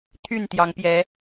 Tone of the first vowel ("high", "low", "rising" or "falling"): falling